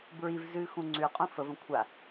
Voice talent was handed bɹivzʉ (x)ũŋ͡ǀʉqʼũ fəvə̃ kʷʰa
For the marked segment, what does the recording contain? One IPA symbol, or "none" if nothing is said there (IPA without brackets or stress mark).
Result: x